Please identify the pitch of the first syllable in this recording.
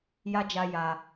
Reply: high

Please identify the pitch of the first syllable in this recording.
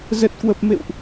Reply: low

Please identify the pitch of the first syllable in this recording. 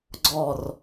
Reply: falling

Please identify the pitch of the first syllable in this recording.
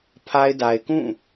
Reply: high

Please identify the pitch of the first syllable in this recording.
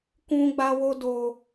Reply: high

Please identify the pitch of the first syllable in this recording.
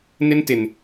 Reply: high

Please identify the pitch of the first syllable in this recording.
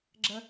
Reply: high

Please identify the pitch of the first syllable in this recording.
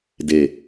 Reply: low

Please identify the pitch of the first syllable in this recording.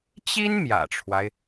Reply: high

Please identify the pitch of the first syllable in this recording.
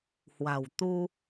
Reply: low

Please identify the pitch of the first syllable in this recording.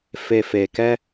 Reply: low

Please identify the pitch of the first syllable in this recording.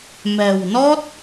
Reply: low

